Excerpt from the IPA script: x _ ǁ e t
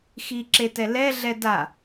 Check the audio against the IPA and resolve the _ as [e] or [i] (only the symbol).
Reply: i